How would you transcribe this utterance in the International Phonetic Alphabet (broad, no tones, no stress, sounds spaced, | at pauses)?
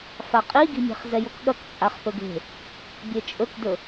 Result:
f a qʼ i ɡ i̤ mʲ e̤ χ z ɛ j o k ɠ ɐ k t͡sʼ a χ p ɵ ɡ e̤ | bʲ e t͡ʃʼ ɵ k d ɵ